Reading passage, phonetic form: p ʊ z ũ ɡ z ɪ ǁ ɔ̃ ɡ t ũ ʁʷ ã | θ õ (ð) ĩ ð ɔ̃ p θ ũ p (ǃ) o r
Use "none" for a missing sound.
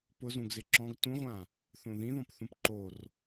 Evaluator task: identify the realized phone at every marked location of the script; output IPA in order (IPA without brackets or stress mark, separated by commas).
ð, ǃ